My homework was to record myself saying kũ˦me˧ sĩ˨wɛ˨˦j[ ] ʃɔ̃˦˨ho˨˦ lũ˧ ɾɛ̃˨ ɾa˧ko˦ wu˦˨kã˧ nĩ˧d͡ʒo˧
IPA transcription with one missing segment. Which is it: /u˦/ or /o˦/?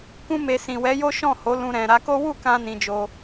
o˦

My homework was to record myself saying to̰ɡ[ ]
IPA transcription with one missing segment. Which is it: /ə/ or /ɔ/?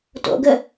ə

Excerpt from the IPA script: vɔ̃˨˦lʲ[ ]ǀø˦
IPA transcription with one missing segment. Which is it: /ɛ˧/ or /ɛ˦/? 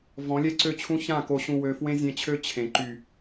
ɛ˦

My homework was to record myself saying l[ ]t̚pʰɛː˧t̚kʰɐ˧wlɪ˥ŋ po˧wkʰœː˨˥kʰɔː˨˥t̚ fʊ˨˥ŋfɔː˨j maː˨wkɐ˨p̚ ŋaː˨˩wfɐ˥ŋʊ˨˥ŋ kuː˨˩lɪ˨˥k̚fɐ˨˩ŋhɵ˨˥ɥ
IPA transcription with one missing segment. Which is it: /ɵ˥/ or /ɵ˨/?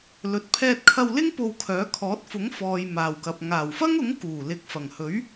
ɵ˨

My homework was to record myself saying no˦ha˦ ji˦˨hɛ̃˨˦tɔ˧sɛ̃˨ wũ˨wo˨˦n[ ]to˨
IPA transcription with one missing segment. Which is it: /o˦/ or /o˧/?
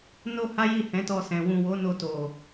o˧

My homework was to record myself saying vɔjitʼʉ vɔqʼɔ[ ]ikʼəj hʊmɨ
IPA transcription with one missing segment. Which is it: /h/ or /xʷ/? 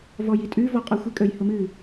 xʷ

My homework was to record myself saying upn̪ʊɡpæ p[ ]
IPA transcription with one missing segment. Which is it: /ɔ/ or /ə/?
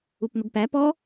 ɔ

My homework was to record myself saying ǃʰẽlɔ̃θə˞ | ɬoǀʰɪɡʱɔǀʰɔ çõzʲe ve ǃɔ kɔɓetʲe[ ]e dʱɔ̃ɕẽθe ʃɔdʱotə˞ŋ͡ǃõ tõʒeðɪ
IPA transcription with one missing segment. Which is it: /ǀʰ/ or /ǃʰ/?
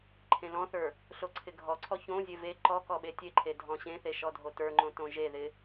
ǃʰ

